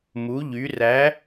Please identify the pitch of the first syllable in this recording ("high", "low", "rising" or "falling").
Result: rising